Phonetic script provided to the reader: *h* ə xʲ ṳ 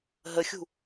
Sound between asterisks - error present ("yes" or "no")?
yes